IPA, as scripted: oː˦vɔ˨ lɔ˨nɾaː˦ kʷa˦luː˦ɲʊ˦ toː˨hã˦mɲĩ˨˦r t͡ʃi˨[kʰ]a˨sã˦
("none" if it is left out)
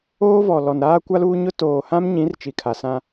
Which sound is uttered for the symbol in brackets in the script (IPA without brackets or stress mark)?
kʰ